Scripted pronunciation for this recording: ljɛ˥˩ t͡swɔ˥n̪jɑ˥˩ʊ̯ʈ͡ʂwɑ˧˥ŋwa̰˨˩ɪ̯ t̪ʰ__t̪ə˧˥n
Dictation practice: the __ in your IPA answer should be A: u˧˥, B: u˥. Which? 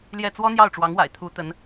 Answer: A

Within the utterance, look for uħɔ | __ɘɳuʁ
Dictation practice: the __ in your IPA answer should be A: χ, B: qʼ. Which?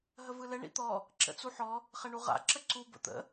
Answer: A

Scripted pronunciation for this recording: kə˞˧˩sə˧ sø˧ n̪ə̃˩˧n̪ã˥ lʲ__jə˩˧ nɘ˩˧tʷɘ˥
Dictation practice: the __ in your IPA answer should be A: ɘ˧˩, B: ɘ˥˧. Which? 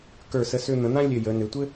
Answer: A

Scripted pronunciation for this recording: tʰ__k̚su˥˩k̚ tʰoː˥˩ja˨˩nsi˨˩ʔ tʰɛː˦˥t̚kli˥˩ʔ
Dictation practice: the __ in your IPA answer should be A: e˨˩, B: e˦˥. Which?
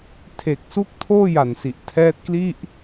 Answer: A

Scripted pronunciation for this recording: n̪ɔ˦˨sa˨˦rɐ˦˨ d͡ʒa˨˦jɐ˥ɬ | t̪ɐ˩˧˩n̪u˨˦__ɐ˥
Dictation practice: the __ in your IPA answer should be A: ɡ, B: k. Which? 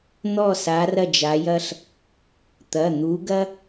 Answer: A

